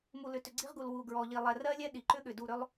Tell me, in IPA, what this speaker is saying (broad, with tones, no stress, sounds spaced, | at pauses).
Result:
m u˨ l ʏ˨ t ʏ˨ ɡ͡ǀ i˦ ʁ ɡ u˨ l w u˨ ɡ ɹ ɔ˨ ʎ i˨ lˠ ɛ˨ r ɜ˦ lʲ ɛ˦ ɗ i˨ ǃ ʏ˦ ɠ ʏ˨ d u˦˨ ɾ ʏ˦ lˠ